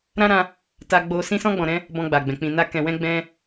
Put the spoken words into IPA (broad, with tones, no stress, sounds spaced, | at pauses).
ɾ ã˦ ɾ ã˧ | t a˧ ɡ͡b o˧ s ĩ˧ s ɔ̃˧ ɡ͡b ɔ̃˨ ɾ ɛ̃˧ | b ɔ̃˧ ɡ͡b a˨ ɡ͡b ɛ̃˨ k͡p ĩ˨ n a˧ k ɛ̃˨ w ɛ̃˧ ɡ͡b ɛ̃˧